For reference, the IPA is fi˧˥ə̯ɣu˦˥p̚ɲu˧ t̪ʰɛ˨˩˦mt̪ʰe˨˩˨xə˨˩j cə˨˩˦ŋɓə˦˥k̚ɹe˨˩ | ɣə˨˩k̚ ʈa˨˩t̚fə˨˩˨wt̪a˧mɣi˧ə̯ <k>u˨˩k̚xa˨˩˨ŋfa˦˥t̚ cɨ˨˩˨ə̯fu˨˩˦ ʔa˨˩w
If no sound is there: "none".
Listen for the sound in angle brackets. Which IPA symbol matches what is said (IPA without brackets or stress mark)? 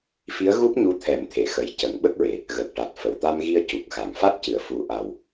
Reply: c